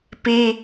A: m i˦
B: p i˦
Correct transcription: B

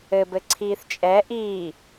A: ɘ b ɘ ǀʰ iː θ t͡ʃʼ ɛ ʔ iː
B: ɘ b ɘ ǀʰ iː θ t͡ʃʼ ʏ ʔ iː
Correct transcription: A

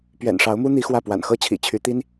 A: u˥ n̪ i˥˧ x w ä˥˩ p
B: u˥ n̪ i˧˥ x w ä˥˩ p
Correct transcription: B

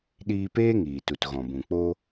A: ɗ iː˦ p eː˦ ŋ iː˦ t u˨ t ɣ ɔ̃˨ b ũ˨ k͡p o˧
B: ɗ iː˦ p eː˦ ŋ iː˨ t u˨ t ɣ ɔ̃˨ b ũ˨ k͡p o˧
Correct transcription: B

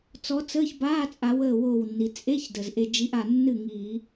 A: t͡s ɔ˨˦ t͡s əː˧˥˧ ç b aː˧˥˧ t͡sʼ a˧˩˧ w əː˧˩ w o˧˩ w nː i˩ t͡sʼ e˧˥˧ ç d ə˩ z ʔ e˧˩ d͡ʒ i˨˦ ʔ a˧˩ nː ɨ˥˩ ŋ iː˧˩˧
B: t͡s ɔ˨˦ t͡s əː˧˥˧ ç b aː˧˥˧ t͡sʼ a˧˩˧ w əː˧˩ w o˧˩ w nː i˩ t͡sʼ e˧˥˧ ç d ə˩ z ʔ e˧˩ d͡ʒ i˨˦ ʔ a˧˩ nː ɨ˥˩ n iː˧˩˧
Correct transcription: A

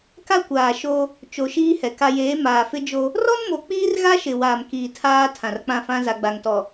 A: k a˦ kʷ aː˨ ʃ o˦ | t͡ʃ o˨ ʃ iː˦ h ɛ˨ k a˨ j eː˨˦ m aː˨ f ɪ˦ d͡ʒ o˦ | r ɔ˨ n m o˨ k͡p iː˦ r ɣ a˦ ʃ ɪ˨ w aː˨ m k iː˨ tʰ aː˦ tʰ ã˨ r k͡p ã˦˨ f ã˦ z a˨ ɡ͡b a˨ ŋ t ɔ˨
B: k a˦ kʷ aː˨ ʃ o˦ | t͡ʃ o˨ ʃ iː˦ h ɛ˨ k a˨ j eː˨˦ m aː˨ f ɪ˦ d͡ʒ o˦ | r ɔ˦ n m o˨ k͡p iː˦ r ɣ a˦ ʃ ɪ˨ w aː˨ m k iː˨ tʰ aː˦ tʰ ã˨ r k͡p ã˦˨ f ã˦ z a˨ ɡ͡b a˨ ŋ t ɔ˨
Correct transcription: B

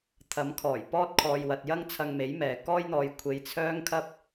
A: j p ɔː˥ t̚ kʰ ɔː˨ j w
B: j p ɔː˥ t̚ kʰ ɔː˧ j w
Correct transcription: B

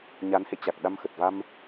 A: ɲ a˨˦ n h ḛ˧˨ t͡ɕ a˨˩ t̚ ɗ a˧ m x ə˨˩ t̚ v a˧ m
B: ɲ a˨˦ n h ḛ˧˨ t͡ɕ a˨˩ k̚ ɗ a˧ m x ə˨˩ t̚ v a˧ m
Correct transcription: B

